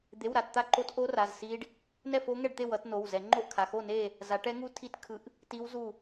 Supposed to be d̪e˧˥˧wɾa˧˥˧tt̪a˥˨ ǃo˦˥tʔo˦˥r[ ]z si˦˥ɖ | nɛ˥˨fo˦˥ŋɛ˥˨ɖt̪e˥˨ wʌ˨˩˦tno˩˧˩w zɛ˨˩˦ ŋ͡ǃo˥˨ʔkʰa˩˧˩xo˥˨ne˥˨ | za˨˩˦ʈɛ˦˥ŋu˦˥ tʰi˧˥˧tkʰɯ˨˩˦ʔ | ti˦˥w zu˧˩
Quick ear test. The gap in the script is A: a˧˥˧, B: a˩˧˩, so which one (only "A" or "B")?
B